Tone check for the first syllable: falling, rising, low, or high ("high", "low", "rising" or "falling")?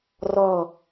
falling